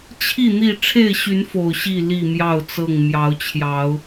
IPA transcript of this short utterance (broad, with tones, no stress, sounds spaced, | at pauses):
t͡ɕʰ i˥˨ n̪ i˥˨ ʈ͡ʂʰ e˥˨ ɪ̯ ɕ y˨˦ n f o˨˩ ʊ̯ ɕ i˥˨ l i˥˨ m j ɑ˥˨ ʊ̯ t͡s ɤ˥˨ ŋ m j ɑ˨˦ ʊ̯ t͡ɕʰ j ɑ˨˦ ʊ̯